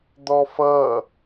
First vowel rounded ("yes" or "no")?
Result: yes